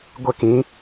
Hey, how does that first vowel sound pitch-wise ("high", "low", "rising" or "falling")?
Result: high